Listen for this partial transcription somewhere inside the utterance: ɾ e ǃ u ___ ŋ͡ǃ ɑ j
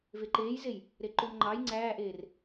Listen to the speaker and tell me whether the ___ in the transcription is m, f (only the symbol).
m